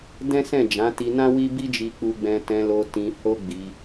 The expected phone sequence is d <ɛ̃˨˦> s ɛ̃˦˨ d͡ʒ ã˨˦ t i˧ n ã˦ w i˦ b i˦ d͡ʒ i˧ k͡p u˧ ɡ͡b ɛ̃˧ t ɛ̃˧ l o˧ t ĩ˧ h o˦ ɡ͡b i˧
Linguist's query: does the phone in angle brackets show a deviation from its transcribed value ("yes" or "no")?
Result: yes